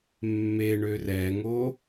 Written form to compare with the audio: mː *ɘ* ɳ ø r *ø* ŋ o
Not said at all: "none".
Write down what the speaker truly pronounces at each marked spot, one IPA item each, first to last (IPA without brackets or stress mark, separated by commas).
e, ɛ